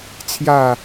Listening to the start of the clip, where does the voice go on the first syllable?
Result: falling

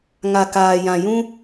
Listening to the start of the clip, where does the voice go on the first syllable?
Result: low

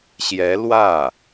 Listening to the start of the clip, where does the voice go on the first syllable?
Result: rising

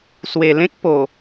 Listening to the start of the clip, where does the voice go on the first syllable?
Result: low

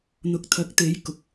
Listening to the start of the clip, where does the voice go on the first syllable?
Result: rising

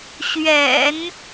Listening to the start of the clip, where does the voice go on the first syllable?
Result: low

